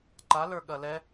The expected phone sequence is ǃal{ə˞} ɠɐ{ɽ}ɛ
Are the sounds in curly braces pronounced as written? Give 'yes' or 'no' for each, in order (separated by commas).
yes, no